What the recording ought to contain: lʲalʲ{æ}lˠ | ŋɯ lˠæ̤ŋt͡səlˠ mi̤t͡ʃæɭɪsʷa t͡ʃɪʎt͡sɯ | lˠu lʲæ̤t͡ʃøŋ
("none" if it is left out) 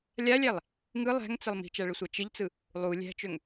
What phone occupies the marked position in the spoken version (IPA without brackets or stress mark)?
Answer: æ